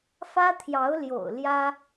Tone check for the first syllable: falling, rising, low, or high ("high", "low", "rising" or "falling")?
high